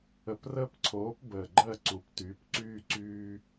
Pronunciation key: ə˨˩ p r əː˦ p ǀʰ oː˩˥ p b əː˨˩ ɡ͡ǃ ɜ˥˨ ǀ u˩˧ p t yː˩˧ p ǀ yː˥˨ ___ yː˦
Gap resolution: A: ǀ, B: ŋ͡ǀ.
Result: A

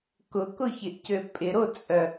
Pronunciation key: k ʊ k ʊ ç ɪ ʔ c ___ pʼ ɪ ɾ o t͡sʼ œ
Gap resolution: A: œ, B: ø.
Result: B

